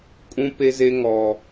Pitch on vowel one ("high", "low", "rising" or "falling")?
high